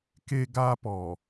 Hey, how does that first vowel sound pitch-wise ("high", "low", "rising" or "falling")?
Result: high